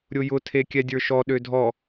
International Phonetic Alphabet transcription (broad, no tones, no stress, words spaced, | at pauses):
ɾʲʊjʊ tʰekʲɛdʲə˞ʃɔ ɗødʱɔ